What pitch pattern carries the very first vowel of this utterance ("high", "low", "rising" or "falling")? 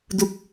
falling